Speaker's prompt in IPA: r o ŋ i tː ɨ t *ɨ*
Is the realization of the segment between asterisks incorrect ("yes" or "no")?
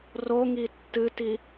yes